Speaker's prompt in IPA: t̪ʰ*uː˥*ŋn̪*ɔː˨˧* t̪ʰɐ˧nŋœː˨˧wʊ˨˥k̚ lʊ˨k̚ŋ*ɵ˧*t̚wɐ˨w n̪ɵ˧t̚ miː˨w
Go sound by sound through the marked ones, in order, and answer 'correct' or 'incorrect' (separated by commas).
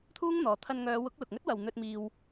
correct, incorrect, incorrect